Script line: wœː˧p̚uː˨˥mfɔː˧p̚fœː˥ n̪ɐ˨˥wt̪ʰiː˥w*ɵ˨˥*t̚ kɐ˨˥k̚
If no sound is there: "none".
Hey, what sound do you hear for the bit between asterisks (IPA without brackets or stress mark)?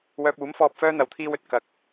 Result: ɵ˨